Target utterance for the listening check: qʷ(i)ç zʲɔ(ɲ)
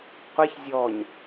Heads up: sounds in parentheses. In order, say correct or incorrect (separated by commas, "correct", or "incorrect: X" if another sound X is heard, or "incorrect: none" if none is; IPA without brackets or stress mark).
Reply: correct, correct